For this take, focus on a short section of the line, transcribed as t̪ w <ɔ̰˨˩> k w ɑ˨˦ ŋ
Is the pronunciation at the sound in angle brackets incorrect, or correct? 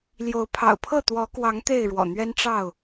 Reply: incorrect